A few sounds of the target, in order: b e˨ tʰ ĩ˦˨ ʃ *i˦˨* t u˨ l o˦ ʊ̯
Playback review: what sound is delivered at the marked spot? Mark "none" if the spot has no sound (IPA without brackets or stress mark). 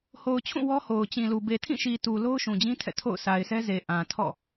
i˨